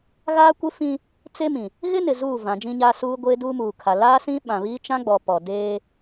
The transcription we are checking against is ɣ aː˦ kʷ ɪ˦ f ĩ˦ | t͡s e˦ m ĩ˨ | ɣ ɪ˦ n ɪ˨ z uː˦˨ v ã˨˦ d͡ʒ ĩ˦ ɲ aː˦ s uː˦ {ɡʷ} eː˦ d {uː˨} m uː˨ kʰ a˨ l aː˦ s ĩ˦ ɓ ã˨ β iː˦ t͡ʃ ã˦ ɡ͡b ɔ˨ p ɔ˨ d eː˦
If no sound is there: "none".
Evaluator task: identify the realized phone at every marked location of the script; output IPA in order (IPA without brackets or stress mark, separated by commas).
ɡʷ, uː˦